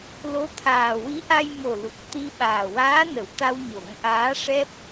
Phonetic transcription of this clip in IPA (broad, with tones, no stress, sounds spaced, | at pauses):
l o˧˥ t̪ʰ aː˨˩ w i˧˥ ʔ a˧ j m o˨˩ l u˨˩ k̚ t̪ i˧ ɓ aː˨˩ w aː˧˥ n ə˨˩˨ w t̪ a˧ w ɲ o˨˩˦ ŋ ʔ aː˧˥ ʂ ɛ˦˥ p̚